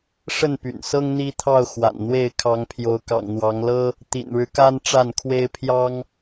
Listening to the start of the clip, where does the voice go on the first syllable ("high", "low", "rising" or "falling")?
falling